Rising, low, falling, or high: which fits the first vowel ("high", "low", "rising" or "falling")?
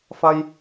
high